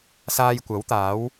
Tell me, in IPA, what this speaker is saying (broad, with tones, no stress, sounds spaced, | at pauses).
s aː˧ j kʷ ɐ˨˥ w t̪ aː˨˥ w